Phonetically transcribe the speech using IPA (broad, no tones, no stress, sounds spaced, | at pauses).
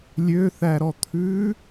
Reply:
lʲ ø θ æ ɾ ɔ t̪ʰ ʉ